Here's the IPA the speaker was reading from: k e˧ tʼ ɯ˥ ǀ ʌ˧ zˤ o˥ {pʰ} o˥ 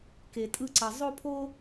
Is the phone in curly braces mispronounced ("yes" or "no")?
no